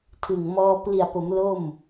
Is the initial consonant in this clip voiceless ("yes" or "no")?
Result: yes